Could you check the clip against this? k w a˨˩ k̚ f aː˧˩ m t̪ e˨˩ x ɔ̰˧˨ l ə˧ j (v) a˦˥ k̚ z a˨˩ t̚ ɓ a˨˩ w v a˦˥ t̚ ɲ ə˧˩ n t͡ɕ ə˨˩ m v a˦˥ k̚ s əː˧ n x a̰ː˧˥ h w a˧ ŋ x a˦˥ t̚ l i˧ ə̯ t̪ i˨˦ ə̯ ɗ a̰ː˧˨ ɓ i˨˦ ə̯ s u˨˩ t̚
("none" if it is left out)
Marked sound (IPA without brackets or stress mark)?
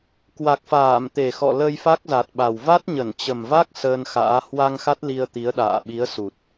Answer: f